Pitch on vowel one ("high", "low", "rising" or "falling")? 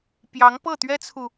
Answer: rising